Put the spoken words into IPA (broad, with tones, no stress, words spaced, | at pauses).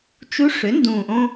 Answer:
t͡ʃu˧˥ʂʏ˩˥ndũ˨˩ʔõ˧